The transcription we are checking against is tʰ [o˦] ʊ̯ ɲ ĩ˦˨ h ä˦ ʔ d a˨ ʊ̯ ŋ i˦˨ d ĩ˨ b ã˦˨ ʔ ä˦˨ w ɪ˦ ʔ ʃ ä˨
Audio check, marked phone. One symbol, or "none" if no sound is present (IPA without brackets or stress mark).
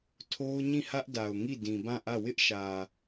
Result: o˦